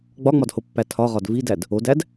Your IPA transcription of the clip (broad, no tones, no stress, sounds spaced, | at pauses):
ɡ͡b ɒ ŋ͡m ɒ d h o pː æ tʰ ɒ ʁ ɒ d v i d æ d | o d æ d